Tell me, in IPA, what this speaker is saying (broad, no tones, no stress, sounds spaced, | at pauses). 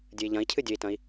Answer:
dʲ ɨ i̯ ʎ ɐ̃ i̯ cʰ ɨ dʲ ɵ i̯ t ɐ̃ i̯